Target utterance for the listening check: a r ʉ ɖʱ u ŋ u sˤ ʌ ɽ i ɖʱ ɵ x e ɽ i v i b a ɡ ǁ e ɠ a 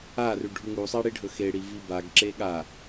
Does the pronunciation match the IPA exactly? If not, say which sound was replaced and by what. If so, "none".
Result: ʌ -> a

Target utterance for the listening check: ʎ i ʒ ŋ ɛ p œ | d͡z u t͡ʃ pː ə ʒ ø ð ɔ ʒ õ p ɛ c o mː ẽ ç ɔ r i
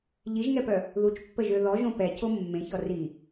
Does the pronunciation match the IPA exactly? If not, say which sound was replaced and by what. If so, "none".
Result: d͡z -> ð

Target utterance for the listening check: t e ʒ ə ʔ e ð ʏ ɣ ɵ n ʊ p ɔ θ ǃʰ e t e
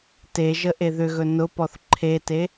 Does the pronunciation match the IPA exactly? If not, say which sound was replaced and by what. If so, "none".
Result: none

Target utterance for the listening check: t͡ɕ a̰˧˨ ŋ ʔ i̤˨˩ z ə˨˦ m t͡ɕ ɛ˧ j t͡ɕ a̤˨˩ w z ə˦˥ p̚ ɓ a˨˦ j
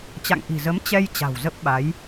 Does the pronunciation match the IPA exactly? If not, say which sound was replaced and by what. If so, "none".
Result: none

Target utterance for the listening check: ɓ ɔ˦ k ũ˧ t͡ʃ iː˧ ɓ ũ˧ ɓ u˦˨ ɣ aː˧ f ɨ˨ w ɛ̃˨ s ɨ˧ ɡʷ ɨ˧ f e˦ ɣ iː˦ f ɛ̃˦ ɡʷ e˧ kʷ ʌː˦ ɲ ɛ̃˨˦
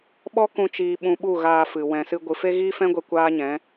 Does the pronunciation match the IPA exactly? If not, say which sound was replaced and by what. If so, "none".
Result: ʌː˦ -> aː˦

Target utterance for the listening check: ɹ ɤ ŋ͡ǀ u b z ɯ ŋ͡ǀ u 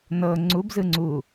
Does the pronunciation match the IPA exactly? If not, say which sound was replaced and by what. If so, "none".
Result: ɹ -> n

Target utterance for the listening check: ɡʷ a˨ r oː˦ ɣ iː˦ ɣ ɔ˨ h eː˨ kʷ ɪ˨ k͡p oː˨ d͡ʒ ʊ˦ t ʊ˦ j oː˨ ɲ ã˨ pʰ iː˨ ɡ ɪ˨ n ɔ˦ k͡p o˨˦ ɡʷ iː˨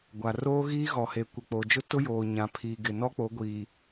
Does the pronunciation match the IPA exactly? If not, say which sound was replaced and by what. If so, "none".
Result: none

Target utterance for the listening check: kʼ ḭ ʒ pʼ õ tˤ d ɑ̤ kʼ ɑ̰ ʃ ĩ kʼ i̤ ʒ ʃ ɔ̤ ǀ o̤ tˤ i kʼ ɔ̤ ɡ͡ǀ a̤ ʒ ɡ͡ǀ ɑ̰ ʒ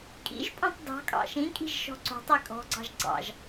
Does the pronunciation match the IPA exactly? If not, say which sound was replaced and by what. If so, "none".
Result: a̤ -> ɑ̤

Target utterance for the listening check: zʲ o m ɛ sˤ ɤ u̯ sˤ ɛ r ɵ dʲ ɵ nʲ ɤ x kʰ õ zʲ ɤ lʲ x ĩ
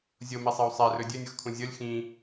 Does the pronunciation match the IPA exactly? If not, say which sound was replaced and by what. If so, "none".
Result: õ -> ũ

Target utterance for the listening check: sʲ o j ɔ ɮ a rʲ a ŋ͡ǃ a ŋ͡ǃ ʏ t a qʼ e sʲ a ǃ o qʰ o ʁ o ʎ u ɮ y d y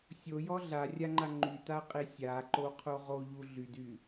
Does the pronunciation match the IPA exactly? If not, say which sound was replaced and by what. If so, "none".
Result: ʏ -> y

